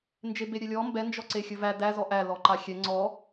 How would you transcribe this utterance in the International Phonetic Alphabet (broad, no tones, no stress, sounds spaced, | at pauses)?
n d͡ʒ e b e ɾʲ ɛ lʲ ɔ m b ɛ n d͡ʒ ɔ ǀ e xʲ ɵ v æ d æ z ɔ ʔ æ l ɔ ǃ a xʲ ɛ ŋ͡ǀ ɔ